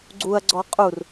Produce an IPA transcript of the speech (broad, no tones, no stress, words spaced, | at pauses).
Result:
ɡ͡ǀuɐ̯ɡ͡ǀɔ qʼur